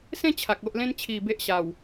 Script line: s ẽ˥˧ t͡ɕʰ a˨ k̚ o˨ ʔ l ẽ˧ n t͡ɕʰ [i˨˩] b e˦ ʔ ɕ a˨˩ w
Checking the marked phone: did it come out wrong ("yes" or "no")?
no